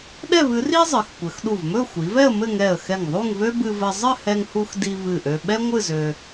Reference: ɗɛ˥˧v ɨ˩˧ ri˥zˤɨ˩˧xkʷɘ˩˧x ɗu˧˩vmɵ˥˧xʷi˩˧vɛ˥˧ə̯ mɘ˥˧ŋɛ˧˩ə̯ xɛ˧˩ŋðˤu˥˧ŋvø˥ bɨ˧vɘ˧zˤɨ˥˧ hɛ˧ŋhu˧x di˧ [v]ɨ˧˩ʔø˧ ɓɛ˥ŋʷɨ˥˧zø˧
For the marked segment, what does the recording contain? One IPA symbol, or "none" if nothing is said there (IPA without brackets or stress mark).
v